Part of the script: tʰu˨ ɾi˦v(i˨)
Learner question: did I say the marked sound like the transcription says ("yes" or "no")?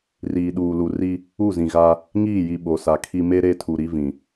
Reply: no